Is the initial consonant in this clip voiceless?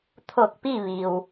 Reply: yes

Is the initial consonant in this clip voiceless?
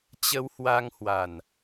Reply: yes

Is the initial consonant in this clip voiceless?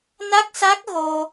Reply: no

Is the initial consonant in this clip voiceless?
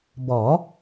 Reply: no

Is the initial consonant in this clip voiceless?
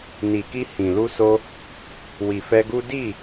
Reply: no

